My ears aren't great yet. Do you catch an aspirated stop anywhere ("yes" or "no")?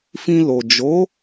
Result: no